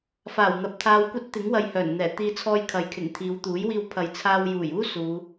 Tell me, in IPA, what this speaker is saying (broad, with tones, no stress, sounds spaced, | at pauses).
f aː˨˩ w n̪ ɐ˨ p̚ t̪ʰ aː˧ w kʷ ɐ˥ t̚ t̪ ɪ˨˥ ŋ w ɐ˧ j h œː˨˩ n n̪ ɛː˨˩ t̪ iː˧ t͡sʰ ɔː˧ j kʰ ɐ˨˧ j kʰ ɪ˨˩ ŋ t̪ʰ iː˨˧ w t̪ uː˨˥ j w iː˧ w pʰ ɐ˨ j t͡sʰ aː˧ w j uː˨˩ j uː˥ s uː˨˧